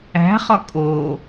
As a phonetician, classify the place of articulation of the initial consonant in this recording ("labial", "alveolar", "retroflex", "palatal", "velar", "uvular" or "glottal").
uvular